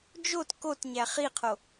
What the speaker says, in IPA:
d͡ʒot kotɲæ χiqʰo

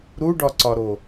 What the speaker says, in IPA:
ɾuɖɒǀɒɾo

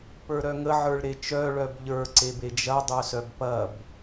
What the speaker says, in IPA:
pə˞ɾœŋə ʕə˞ɭɾet͡ʃœ ɭœbʎə˞ ǀebed͡ʒɐ dˤœsœbpɐb

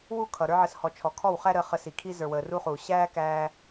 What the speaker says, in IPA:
wu˦˨ kʰʌ˨ ɾə˞˧ʕə˨shɔ˨ t͡ʃʰɔ˨kʰɔ˦˨wχæ˦ɾəː˧ χə˧si˨kʰi˦ zə˞˨wəː˨ ru˧χuː˨ ɕæː˦kæː˧

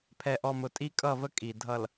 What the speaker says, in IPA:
pʰɛ˨ʔɔ˨mʊ˨tʼi˦ kʼʌ˦˨və˦ kʼi˨dʱʌ˨l

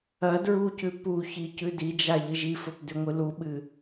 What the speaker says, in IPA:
ɐ dɹucʉ puçi cʉdid͡ʒa ʎɨʒifɵp dʉŋʷɨluɓɨ

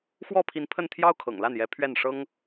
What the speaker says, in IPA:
xwɔ˥˩pʰi˧˥n pʰə˥˩nt̪ʰjɑ˥ʊ̯kʰɤ̰˨˩ŋ la˥˩njɛ˧˥pʰɥɛ˥˩nʂɤ˥ŋ

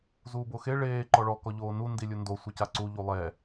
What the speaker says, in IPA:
zuːboxe ɭeː ǃɔɭɔ kɔʎoːnu ndilʲundo sʷɯcaǀu ʎulˠɛ

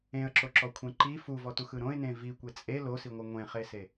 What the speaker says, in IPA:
ẽə̯ǁoǁɔkʷʰẽ ǃi fuvɔtuxɯ ɾõɪ̯nẽ vikʷe t͡sʼe losiŋʷɯ ŋʷẽχese

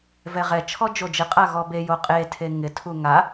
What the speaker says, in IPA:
vɛʁɛt͡ʃʰɔ d͡ʒod͡ʒɪ qʼaɣɔbe joqʼetʰe ŋɪtʰu ŋa

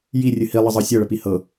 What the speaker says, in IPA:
jirʲɨ hilˠəzˤɤ sʲɤɭəpi hɤ

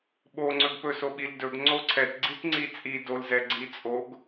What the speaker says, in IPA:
ɓo ŋ͡ǀɵɡpɵsoɓil dɵɡ ŋ͡ǀoǀʰɛtɡ͡ǀit ŋ͡ǀit͡sʼi dolzɛ ɡ͡ǀit͡sʼoɡ

